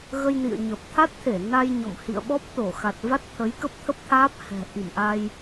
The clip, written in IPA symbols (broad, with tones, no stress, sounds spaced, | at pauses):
ɣ ə˧ j n ḭ˧˨ ə̯ ɲ ə˨˩ p̚ t̪ʰ a˦˥ t̚ t̪ʰ e˧˩ n a˧ j ɲ ɔ̰˧˨ m h ḭ˧˨ ə̯ ɓ ɔ˦˥ p̚ t̪ o˧˩ x a˨˩ t̚ v a˦˥ t̚ t̪ʰ ə˨˦ j k ə˦˥ p̚ t̪ʰ ə˦˥ p̚ t̪ʰ aː˦˥ p̚ h ɛ̤˨˩ ʔ i˧˩ m ʔ a˧ j